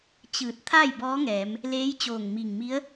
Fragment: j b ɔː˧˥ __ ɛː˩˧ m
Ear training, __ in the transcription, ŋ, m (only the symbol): ŋ